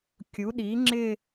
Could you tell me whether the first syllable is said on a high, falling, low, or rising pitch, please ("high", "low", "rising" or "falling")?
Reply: rising